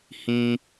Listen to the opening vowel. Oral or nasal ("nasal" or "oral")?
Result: nasal